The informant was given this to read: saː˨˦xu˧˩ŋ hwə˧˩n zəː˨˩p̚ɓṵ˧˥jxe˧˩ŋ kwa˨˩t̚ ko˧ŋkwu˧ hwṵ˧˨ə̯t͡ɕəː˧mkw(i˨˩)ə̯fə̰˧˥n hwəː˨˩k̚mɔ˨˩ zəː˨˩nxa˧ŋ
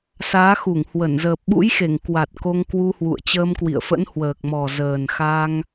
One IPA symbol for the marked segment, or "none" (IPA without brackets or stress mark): ḭ˧˨